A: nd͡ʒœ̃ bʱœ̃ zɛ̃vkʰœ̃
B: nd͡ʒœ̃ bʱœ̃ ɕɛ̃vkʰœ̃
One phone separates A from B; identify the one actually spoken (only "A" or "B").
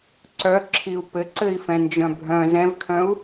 A